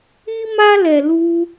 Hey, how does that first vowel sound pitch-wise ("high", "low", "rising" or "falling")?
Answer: high